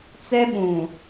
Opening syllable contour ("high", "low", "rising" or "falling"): high